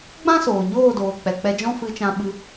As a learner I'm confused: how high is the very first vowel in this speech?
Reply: low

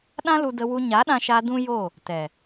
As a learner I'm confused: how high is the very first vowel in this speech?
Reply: low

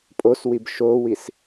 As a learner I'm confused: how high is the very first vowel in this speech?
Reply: mid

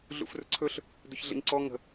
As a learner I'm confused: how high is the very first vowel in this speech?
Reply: high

